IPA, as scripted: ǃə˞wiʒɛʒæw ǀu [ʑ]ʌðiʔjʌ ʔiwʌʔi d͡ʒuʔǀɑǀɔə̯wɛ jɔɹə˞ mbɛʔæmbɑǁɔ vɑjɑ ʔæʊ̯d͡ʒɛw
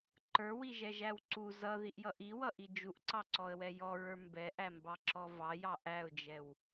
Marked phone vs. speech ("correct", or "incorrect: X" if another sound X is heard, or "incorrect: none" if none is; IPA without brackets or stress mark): incorrect: z